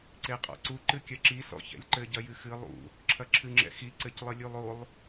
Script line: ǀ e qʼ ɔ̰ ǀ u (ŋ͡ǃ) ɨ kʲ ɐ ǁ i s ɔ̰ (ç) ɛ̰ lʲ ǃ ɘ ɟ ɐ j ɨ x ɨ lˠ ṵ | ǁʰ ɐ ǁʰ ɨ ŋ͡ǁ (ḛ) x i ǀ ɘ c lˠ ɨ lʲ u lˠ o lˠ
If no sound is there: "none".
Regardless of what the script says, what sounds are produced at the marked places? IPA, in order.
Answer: ǃ, ç, ɛ̰

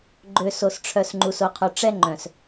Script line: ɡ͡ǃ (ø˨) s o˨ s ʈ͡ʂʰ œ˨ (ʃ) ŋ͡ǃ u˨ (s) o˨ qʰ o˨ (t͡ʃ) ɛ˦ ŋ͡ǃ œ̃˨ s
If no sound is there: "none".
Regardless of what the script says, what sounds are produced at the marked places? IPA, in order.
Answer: ø˨, s, s, ʈ͡ʂ

